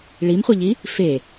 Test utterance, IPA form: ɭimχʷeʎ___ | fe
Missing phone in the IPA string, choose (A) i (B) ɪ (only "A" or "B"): A